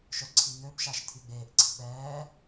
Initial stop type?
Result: click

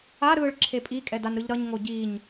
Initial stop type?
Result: click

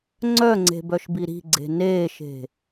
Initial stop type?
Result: click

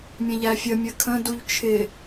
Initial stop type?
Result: aspirated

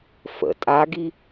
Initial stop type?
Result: ejective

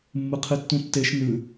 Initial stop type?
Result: aspirated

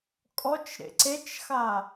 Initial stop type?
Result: ejective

